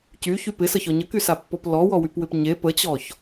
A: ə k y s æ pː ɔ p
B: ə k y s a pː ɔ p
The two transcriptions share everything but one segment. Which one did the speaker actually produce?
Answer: B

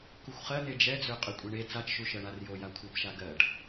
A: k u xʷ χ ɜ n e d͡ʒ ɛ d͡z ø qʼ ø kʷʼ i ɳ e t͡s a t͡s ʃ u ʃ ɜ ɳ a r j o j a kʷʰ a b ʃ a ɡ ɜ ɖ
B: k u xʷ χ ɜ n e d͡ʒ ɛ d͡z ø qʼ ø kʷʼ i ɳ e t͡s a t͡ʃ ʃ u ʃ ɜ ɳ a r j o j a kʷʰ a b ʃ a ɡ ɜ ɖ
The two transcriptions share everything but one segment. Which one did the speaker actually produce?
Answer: B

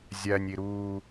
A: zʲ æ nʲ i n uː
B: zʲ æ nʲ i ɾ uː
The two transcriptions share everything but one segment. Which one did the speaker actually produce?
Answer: B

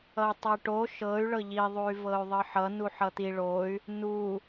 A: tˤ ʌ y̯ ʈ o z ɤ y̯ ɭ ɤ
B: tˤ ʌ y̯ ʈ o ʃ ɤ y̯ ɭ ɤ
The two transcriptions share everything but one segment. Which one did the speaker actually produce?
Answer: B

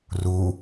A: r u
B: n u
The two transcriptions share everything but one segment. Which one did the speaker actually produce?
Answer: A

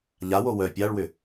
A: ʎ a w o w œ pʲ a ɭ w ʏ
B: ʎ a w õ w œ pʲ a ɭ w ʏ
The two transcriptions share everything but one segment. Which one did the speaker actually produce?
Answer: A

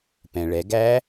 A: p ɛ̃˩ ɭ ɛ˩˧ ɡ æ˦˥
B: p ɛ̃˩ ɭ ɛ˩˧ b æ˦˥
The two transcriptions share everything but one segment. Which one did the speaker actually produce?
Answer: A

